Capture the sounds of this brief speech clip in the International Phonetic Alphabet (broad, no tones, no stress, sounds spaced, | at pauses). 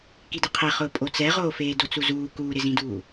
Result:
k i d ɪ qʰ e χ ʊː pʼ o t͡s ɛ ʁ oː f eː d o t͡s u z uː k uː ɾ ɪ z ĩ d uː